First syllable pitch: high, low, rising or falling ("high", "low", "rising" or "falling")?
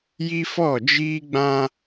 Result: high